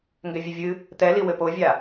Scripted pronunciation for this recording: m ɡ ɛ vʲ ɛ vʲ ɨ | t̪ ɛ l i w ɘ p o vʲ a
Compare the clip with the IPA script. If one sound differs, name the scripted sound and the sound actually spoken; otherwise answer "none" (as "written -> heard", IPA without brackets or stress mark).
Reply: m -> ŋ